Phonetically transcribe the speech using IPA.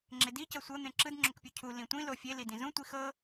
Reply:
ŋ͡ǁedi cɤsʷɤ n̪ẽǁɯd ŋ͡ǁokpʲucʰu lĩtʷĩ lofʲe lidĩzũ tʷixɤ

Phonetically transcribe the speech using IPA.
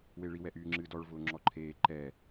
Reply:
weɭi wɛʔyːŋ͡ǁɨːdɔɭ vʊːŋ͡ǁɔǃʰeː ǃɛ

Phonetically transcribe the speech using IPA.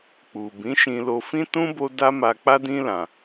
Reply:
k͡pu˨bĩ˨˦ʃĩ˧ lo˧fĩ˦tũ˦ bo˦ da˦ma˧k͡pa˦dĩ˦ lã˧

